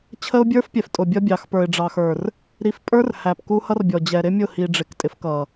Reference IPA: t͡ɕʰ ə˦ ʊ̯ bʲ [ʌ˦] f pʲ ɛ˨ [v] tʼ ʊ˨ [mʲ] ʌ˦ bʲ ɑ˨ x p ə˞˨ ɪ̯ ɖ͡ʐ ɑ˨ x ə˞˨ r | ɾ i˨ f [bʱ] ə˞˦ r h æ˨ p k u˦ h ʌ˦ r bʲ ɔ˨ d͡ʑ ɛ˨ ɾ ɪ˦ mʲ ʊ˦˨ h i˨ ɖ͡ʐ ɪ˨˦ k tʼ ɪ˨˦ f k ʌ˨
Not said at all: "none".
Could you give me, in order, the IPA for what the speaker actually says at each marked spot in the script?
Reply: ə˞˦, f, bʲ, pʼ

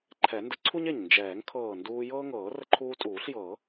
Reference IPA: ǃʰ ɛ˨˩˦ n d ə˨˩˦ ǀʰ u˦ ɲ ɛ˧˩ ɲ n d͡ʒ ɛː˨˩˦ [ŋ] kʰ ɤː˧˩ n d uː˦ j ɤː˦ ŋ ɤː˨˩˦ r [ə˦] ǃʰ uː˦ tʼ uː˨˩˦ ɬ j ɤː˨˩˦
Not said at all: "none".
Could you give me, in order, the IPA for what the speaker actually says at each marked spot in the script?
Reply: ŋ, ə˦

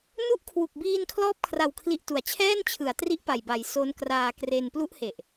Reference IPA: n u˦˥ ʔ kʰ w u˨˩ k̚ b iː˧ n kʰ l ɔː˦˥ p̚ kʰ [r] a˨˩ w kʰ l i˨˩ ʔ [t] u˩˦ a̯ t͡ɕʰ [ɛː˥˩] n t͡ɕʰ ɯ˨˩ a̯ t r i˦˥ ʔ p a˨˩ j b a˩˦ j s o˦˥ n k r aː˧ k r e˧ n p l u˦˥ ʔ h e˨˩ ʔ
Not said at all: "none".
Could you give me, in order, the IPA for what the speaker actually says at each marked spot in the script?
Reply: r, t, ɛː˥˩

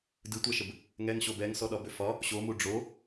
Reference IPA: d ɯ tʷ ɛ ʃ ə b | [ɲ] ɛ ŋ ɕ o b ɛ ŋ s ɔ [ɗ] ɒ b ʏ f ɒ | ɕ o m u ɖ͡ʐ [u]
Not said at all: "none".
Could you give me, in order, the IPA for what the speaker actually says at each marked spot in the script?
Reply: ŋ, ɗ, o

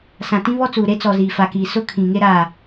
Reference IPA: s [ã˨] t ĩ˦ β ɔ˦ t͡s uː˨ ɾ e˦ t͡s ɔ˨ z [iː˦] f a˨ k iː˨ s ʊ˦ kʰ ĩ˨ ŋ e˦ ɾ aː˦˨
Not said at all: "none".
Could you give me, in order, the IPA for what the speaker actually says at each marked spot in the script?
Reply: ã˨, iː˨

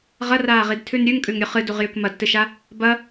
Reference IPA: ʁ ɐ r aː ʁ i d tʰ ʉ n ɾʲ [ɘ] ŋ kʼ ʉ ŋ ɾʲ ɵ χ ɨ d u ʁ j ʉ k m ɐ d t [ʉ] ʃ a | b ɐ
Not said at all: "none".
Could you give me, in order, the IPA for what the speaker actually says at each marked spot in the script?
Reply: ʉ, ɨ

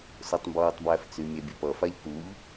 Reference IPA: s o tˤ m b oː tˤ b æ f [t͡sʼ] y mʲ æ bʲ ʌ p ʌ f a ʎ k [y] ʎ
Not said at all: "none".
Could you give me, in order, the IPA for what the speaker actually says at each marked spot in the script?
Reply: t͡s, u

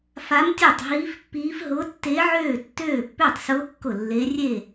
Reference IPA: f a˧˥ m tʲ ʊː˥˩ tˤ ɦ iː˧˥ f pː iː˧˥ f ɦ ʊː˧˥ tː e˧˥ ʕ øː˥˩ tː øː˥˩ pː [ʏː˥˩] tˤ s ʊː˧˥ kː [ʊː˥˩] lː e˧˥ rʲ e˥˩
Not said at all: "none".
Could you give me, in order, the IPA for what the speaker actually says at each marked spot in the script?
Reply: ʏː˥˩, ʊ˥˩

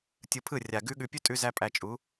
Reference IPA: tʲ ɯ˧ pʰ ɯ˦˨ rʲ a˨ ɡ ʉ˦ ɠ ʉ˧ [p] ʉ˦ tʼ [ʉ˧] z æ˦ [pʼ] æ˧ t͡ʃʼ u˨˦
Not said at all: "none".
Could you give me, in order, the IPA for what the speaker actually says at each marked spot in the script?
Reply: pʲ, ʉ˧, pʼ

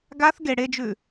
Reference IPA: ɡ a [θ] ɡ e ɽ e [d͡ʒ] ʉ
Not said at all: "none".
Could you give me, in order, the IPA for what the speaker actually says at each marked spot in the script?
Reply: θ, d͡ʒ

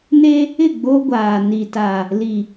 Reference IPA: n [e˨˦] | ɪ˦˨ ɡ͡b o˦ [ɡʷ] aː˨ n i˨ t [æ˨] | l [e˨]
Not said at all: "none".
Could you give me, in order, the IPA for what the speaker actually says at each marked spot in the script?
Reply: e˦, ɡʷ, a˨, i˨

